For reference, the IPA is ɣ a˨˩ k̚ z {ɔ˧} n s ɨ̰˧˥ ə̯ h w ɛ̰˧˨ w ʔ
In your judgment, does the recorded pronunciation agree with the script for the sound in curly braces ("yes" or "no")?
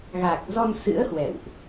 yes